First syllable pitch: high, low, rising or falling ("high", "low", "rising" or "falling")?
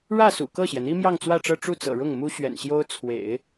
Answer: falling